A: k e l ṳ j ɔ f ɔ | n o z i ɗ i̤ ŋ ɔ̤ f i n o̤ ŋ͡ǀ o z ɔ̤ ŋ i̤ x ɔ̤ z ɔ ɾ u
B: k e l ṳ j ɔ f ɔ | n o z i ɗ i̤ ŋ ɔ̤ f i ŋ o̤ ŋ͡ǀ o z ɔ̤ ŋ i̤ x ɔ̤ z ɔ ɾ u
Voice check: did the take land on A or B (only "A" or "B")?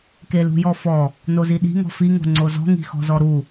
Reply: B